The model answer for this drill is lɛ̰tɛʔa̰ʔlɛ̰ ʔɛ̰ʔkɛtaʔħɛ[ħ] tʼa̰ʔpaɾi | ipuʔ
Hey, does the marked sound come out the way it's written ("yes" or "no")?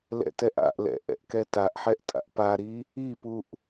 no